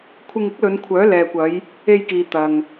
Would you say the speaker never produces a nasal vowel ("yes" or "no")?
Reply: yes